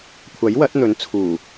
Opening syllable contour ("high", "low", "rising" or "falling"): rising